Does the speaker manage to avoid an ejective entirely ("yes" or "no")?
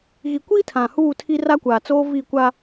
yes